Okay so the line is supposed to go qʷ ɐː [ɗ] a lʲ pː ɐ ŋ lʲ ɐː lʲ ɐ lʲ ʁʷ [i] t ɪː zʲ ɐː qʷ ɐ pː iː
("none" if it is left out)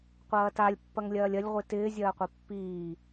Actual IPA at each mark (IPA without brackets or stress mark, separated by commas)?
t, i